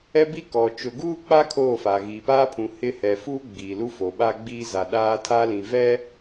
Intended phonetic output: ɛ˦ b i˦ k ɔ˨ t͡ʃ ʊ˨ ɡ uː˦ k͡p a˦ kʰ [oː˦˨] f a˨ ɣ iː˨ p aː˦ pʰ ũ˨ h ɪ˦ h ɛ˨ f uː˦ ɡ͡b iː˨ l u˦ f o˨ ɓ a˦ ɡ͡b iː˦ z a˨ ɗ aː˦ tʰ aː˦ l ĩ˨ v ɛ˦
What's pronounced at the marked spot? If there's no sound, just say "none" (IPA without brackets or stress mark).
oː˦˨